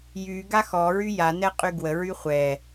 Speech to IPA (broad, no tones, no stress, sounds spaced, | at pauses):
j y ɡ a x ɔ ɹ y j a n ɛ qʼ y ɡ w ə ɹ y χʷ ɛ